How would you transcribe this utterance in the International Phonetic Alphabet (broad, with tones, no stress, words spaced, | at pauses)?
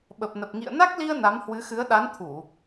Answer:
ɓə˨˩p̚nə˨˩p̚ ŋḭ˧˨ə̯ na˦˥k̚li˧ə̯ na˨˦mhwɨ˨˦xɨ˨˦ə̯ ɗa˨˦n t̪ʰu˧˩˨